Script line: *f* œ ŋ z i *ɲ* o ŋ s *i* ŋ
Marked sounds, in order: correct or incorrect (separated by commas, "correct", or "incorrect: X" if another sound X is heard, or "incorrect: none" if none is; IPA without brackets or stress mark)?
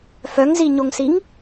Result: correct, correct, correct